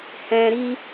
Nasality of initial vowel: nasal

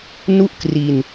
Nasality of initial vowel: oral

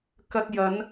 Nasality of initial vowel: oral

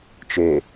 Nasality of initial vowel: oral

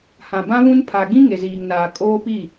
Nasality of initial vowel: nasal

